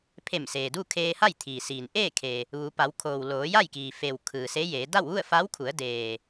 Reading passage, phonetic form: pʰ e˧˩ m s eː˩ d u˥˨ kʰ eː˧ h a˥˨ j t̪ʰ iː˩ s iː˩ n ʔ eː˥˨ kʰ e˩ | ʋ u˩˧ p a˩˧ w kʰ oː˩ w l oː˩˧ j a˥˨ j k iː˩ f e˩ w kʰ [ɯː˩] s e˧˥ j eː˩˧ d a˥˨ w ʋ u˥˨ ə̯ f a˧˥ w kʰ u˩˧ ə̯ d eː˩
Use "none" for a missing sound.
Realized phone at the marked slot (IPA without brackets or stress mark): ɯː˩